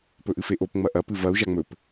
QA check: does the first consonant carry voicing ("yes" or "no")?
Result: no